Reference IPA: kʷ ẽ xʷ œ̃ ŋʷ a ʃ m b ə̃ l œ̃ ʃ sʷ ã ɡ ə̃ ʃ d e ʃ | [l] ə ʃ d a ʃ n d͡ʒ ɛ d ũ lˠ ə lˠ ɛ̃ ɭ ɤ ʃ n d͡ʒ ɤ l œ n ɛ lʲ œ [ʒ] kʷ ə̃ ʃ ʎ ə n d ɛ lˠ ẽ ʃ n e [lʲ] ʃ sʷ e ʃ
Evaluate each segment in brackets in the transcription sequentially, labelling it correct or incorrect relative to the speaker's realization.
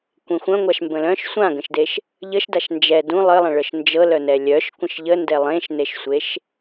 incorrect: ʎ, incorrect: ʃ, incorrect: none

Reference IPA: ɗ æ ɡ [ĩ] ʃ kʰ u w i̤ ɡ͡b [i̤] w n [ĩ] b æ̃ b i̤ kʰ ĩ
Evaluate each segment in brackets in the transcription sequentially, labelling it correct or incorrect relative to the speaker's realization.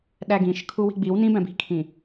correct, incorrect: i, correct

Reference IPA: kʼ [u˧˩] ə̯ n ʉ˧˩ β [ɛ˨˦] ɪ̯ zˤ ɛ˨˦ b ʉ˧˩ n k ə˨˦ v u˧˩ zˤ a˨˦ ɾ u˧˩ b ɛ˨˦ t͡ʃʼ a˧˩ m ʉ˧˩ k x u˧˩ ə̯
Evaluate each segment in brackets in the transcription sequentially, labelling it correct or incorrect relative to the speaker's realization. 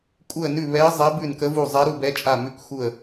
correct, correct

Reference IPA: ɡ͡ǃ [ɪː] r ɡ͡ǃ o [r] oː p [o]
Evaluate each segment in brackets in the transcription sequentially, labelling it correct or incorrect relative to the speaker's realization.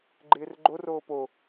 correct, correct, correct

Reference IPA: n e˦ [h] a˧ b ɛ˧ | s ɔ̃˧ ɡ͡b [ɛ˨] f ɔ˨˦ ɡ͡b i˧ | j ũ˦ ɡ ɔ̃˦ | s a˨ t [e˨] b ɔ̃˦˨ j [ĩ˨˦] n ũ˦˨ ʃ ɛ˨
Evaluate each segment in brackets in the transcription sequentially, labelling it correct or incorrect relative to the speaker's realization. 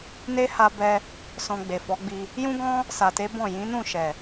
correct, incorrect: e˨, incorrect: e˨˦, correct

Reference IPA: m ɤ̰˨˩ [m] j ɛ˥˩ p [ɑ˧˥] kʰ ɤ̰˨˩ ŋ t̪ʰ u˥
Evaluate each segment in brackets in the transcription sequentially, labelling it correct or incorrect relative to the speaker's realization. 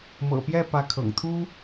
incorrect: p, incorrect: ä˧˥

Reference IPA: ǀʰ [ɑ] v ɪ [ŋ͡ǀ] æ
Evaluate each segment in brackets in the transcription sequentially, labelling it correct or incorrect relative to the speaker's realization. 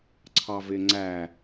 correct, correct

